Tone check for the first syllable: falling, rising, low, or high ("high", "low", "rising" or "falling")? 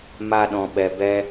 high